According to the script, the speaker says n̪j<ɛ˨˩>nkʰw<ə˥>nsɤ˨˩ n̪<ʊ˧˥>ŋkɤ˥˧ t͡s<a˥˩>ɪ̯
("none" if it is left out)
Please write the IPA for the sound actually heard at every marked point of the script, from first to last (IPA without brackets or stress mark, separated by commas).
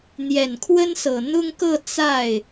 ɛ˨˩, ə˥, ʊ˥, a˥˩